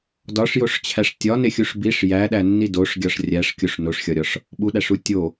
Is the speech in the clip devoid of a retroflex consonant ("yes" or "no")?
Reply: no